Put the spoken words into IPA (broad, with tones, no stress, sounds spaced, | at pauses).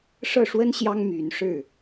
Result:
ʂ ɤ˥˩ ʂ w ə˥ n ɕ j ɑ˥ ŋ m y˧˥ n ʂ ɻ̩˥˩